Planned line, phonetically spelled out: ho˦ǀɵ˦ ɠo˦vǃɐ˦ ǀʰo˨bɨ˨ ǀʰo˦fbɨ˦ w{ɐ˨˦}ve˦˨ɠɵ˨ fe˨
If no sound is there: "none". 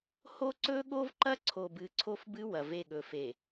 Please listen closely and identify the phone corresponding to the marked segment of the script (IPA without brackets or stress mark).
ɐ˨